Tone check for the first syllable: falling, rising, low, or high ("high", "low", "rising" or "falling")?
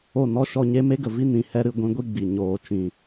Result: falling